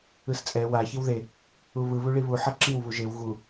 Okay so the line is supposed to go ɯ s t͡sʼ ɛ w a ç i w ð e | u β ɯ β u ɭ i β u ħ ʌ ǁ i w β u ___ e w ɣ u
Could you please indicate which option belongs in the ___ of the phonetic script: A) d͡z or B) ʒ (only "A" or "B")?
B